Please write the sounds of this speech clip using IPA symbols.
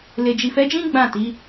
le˨d͡ʒi˨fɛ˨˦d͡ʒĩ˦ ɡ͡bã˦˨ti˨˦

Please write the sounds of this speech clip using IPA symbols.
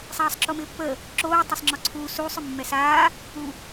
sˤaːsˤǁomɪːpːə | ǁoː tˤasˤŋ͡ǁɔǀʰuː suːsˤ ʏmːɛsaː | u

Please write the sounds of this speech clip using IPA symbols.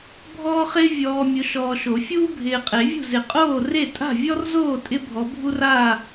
bʱɔː˥χɪː˥ vʲɔː˨ mʲʊ˨˦ʃɔː˨ʃo˨˩˦ fʲuː˥bʱɪː˨qʼe˨˩˦vʲṳ˥˨ zɪ˨qʼoː˥˨re˥˨ tʼa̤˥˨vʲɔ˥rzoː˥˨ tʼɪ˥bʱɔ˨˦bʱu˥raː˥˨

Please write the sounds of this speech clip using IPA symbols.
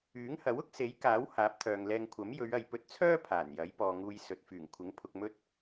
yː˨˥ŋhɐ˨˥w ʊ˥k̚ se˨˥jkaː˨˥w haː˨˥p̚t̪ʰœː˨ŋlɛː˧ŋkʷʰɐ˨˥m jɵ˨˧ɥ ɐ˨jpɵ˧t̚t͡sʰœː˥ pʰaː˨˩njɐ˨˥jpɔː˨ŋuː˧j sɵ˨t̚fyː˨˩ŋkʷʰɪ˨˥ŋ pʰʊ˧k̚mɵ˥t̚

